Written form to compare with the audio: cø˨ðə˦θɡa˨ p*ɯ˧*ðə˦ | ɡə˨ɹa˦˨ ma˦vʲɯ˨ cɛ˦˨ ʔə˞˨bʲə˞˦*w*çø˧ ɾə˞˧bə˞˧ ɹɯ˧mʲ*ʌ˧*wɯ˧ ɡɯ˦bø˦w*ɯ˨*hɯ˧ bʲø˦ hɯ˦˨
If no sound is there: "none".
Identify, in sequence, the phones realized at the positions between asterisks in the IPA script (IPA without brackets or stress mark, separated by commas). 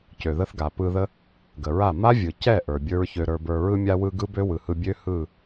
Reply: ɯ˧, ɹ, a˧, ɯ˨